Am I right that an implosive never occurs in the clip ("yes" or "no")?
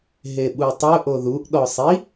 no